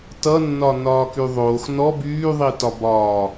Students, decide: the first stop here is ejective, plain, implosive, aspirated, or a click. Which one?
plain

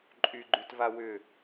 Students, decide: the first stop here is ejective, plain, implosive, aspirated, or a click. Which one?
click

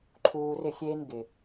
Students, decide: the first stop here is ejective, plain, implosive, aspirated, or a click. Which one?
click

